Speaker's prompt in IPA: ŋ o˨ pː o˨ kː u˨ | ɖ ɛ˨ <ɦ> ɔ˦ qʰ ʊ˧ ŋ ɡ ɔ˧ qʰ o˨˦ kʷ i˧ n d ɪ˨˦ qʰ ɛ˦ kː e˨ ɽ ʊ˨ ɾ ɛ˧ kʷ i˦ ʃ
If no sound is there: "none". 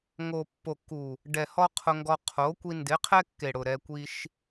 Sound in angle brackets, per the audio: h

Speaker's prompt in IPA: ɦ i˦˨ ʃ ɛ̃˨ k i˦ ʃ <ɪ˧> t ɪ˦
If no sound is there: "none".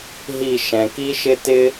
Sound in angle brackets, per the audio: ɪ˦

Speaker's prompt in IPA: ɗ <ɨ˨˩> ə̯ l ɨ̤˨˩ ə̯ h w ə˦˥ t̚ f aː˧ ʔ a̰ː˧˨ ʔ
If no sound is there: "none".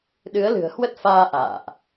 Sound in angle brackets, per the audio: ɨ˨˦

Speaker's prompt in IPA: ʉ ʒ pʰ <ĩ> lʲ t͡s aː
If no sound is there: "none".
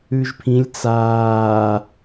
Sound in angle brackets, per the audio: ĩ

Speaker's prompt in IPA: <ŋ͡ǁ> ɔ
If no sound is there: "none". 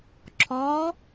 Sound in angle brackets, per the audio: ǁʰ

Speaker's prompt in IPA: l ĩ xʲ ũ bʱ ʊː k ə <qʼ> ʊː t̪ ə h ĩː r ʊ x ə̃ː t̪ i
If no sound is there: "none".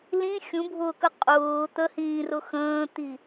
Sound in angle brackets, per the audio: qʼ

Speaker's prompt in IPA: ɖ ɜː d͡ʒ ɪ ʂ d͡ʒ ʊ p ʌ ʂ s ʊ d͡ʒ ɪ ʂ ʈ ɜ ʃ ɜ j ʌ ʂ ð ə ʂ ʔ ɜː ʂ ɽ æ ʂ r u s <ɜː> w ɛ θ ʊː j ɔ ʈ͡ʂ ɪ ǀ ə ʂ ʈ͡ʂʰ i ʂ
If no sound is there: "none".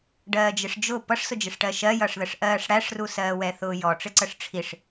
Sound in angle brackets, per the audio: ɜː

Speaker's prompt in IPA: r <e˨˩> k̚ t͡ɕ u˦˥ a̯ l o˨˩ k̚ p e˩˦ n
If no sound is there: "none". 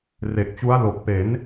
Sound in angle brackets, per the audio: e˨˩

